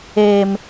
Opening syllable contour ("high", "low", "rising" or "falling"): low